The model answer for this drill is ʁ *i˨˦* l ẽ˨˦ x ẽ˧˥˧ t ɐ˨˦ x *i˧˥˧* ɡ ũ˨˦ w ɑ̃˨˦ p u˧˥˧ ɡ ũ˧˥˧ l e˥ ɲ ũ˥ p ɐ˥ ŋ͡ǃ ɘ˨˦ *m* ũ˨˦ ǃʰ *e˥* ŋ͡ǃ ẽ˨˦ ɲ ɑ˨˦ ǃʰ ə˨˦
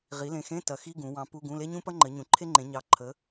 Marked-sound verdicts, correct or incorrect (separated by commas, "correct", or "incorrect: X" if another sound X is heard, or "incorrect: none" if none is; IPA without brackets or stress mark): correct, correct, incorrect: ɲ, correct